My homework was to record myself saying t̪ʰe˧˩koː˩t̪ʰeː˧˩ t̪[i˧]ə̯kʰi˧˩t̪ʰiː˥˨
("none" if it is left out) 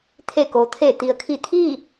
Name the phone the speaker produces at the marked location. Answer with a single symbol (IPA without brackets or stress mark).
i˩